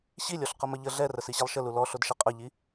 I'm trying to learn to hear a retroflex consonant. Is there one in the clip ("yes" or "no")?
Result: no